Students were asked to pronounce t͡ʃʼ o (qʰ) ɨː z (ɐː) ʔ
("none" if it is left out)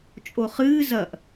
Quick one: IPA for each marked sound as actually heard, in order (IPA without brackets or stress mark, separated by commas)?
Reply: χ, ɐ